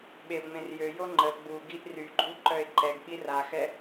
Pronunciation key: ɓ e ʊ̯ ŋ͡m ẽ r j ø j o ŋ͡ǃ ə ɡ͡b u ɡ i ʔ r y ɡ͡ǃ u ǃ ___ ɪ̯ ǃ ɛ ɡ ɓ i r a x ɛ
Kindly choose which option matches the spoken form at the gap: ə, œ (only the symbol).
œ